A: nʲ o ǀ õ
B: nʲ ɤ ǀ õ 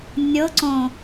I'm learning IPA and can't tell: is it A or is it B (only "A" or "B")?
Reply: B